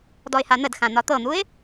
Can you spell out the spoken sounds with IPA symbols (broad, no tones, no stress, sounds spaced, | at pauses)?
d ɔ ɪ̯ h a n̪ ə d x ã n̪ ɒ t̪ ɤ n̪ u ɪ̯